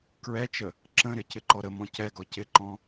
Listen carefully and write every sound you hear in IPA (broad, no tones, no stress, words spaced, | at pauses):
kɹɛt͡ʃə | ǁə̃ɾɪ cɪǃɔɾəmɔ̃ cɛɡɔ cɪǃɔ̃